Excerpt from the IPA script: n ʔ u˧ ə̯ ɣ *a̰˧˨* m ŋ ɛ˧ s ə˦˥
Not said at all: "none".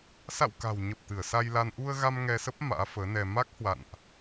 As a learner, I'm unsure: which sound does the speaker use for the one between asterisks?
a˧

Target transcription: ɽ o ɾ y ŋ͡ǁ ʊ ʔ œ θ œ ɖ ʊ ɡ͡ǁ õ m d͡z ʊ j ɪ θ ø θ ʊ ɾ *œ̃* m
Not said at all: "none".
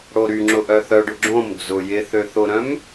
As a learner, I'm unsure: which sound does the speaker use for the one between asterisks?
œ̃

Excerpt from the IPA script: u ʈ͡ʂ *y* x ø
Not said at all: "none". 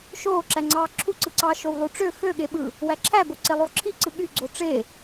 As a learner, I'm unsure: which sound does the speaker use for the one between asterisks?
ø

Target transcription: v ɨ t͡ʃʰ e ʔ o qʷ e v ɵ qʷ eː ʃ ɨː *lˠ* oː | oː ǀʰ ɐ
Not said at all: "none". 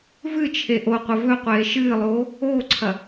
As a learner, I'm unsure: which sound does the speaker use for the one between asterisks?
lˠ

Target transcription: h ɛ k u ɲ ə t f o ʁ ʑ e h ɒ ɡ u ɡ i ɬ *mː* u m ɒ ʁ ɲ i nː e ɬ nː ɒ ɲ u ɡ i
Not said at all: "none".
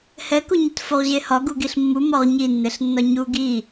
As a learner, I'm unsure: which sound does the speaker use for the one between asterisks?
mː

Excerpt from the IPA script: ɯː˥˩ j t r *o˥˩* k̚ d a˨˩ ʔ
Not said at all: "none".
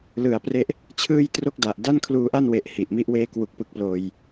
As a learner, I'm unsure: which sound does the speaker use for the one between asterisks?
o˥˩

